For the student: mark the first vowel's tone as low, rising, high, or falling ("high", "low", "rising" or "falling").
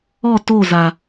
falling